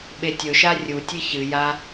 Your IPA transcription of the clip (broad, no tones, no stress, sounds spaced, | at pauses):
ɓ e tʲ ɵ ʃ a rʲ u tʲ ɨ ç ɨ j a